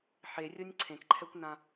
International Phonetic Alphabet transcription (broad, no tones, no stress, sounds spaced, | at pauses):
ħ e rʲ o nʲ ǀʰ ẽ k ǃʰ ɛ kʷ n ã